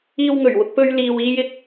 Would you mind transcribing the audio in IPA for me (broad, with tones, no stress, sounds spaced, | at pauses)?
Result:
iː˧ w ŋ ɵ˨˩ ɥ w ʊ˧ k̚ p ɵ˧ ɥ l iː˧ w iː˥ j ɪ˥ k̚